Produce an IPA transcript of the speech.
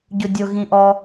ɟʊdʲʊ ɣĩʔɔ

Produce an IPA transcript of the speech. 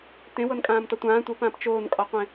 tẽwɤnkʼãːmtɒ tʷãː tʷɤpãːp t͡ʃoːnkʼɒqʷẽ

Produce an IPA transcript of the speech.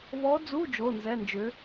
βɔ˧˥d͡zu˧˥˧ d͡ʒo˧˥˧nzɛ˧˥˧nd͡ʒʏ˧˥

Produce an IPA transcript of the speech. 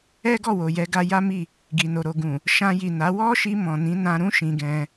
ɛ˦ɡɔ˦˨wo˨ jɛ˨˦ɡa˧ ja˦mi˦˨ | ɡi˨no˨ ɾo˨ ɡũ˨ | ʃã˧ji˨na˨˦ wɔ˦ʃi˧ mɔ̃˨nĩ˨˦nã˧ɾũ˦ ʃĩ˧ɡɛ̃˧

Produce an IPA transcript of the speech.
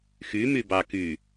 xy mybɑky

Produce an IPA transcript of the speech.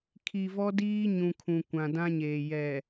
kʰi˨vɔ˦ diː˦ ɲũ˨kʰũ˨ kʷã˨ dã˦ɲeː˨ jɛ˨

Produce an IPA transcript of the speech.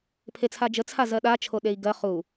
pʰet͡sʰad͡ʒə t͡sʰazɜɗa t͡ʃʰoɗei̯ɡɜ χu

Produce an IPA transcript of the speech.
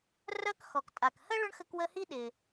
rœ˦kxɔ˩ktʼa˩khə˥ ɭʊ˥ɳxə˦kwə˦hi˥ ɗɪ˩

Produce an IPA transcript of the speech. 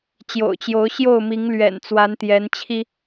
t͡ɕjo̰˨˩ʊ̯ t͡ɕjo˨˦ʊ̯ɕjo˥˨ʊ̯mi˨˦ŋ lɥɛ̰˨˩n t͡swa˨˦nt̪jɛ˨˦n t͡ɕʰi˦

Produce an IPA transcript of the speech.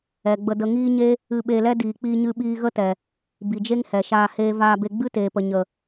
ɛ˨ɡ͡bə˧ də˧ŋiː˦ɲe˦ | ɨ˧ɓe˧lɛ˦diː˨ k͡piː˧ɲɨ˧ɓiː˧ ɣə˦tɛ˨ | bi˨d͡ʒe˦ŋhɛ˨ʃaː˧ heː˧vaː˧be˧ ɡ͡bɨ˦teː˨pə˨ ɲə˨

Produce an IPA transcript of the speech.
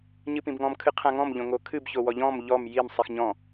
ɲɨpĩbŋɔ̃m kʰɨqʰãŋɔ̃m ʎõŋokʰɨb çowɔʎɔ̃m ʎɔm jim sˤixɲɔ̃

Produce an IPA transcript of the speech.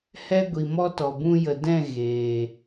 hɛ˦ ɡʷi˨mɔ˦tɔ˨ bũ˧jə˨ dɛ̃˦˨ ɣeː˨

